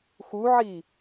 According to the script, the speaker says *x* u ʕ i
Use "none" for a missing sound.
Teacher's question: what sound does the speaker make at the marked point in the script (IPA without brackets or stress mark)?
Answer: x